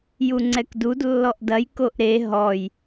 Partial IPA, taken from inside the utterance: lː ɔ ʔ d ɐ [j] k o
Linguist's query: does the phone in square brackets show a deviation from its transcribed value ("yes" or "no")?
no